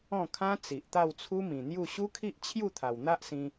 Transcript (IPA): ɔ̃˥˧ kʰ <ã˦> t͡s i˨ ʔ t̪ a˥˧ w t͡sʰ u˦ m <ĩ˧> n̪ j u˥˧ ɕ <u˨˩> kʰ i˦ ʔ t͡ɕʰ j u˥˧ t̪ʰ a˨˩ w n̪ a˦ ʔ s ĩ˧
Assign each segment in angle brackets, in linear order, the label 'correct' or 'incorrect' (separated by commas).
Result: correct, incorrect, incorrect